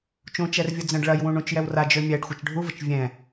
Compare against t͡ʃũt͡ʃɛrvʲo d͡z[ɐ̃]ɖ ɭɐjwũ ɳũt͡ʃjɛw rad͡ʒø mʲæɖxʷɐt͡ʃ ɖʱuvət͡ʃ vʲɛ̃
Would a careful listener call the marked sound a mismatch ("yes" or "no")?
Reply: yes